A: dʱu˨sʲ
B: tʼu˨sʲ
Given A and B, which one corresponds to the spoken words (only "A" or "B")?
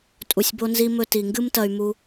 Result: B